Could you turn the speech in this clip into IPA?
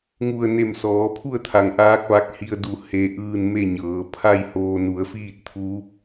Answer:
ŋ u˧˩ ə̯ n e˧˩ m s ɔː˩˧ pʰ u˥˨ ə̯ t̪ʰ a˩ ŋ ʔ aː˧˥ k̚ ʋ a˧˥ k̚ h i˧ ə̯ d u˧˩ h e˧ ʔ ɯː˥˨ n m e˥˨ ɲ ɤː˩˧ pʰ a˥˨ j h oː˧ n u˩˧ ə̯ f iː˥˨ t̚ t̪ʰ uː˧˥ p̚

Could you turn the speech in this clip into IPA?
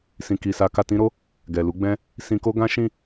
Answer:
s ĩ˨ k i˨ s a˨˦ k a˧ t ĩ˦ ɾ o˦ | ɡ ɛ˨ l u˨˦ ɡ͡b ɛ̃˧ | s ĩ˧ k o˦ ɡ ã˦ ʃ ĩ˦˨

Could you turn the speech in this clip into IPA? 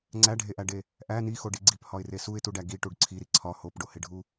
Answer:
ŋ͡ǀ æ ɖʱ e ʔ æ ɖ e | ʔ æ n i x o ɖ i ɡ͡ǀ i p h ɒ ɪ̯ r e s u ɪ̯ t u ɖ æ ɡ i ʈ u ɖ ǀʰ i ɾ i ǀʰ ɒ h o p ɖ o h e ɖʱ u

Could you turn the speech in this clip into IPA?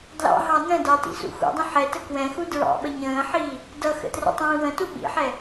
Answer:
d l ɑ̰ ɦ ɑ n ə̃ d ɑ t ḭ s ṵ x ṵ dˤ ə̃ ħ ɛ t ə k w ɛ̃ x u d ɹ ɑ̰ ɓ ə ɲ ə̃ː ħ iː | d ʌ x ə̰ t r ə̰ tˤ ĩː w ə̃ t u ɓ ḭ ħ ɛ

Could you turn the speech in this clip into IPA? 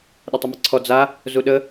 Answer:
ɗ ə tˤ ə m ə ǀʰ ɔ d͡z a | z u ɗ ə

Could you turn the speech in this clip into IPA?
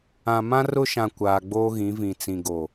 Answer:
ã˨ m ã˦ r ʊ˦ ʃ ã˨ kʷ aː˨ ɡ͡b oː˦ ɣ ĩ˨˦ v ĩ˨ t͡s ĩ˨ ɡ o˨

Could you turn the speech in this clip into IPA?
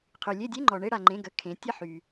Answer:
qʰ y˩ lʲ e˦˨ dʲ e˧˥˧ ŋ͡ǃ ɔ˩ ɳ e˦˨ ɽ a˩ ŋ͡ǃ ẽ˩˧˩ ɡ ə˩˧˩ kʰ ẽ˩˧ tʲ ə˦˨ ħ y˩

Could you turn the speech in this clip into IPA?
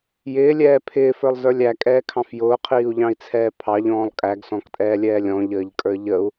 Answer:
j ɪː lʲ ɛː pʰ ɪː f ə˞ lˠ z ə˞ lʲ æ kʼ ɛː kʰ ɑ̃ f j ʊː qʰ iː u̯ ʎ ɑ̃ i̯ t͡sʰ ɛː pʰ ɑ ʎ ɔ̃ː lˠ kʼ æ ɡ s ɔ̃ k tʼ ɛː lʲ ɛː lʲ ɔ̃ ʎ əː ʎ kʼ ə˞ ʎ ə u̯

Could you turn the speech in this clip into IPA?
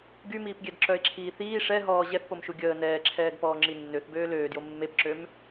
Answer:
ɡ y m iː p ɡʲ ɛ d ǁ œ e̯ ǁʰ iː θ iː ʂ ɛ ɦ ɔː ʑ ɛ θ p o m ʃ u ɡʲ əː n ɛː ǁʰ ɛː ɡ p ɔː ŋ͡ǁ i nː ø θ b øː l øː d j o mː e p ǁ ø m

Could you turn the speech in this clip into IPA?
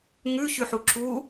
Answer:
ŋ ʉ ç ʉ ħ u ǁ u

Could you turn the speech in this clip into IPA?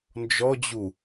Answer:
n d͡ʒ ɔ d͡ʑ u

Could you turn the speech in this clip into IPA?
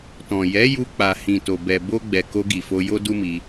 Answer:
t ɔ̃˨ j ɛ˨˦ j u˧ k͡p a˨ h ĩ˨ t o˨ b ɛ˨ b o˧ ɡ͡b ɛ˨ k o˧ ɡ i˨ f o˧ j o˦ d u˦ m i˧

